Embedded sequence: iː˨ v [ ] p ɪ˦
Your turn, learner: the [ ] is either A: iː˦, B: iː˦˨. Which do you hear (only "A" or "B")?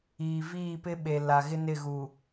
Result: B